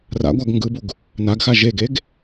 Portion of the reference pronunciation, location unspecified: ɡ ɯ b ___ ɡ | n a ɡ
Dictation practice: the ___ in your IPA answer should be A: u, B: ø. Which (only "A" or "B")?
A